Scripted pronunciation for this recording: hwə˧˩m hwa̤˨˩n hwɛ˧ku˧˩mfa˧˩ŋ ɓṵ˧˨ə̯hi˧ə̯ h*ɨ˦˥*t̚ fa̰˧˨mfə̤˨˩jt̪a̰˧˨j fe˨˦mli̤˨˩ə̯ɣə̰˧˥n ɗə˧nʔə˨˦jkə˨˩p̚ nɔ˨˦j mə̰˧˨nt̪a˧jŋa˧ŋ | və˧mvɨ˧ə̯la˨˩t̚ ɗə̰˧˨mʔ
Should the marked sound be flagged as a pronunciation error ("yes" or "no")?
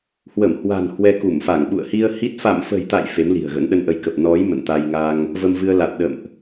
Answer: yes